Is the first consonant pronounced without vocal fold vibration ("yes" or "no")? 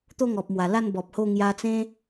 yes